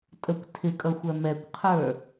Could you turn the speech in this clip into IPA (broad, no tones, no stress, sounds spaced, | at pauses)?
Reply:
tʼ ə kʷ tʰ ɪ kʼ ʌ xʷ æ m ɛ kʷ qʰ ə˞